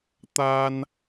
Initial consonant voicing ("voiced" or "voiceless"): voiceless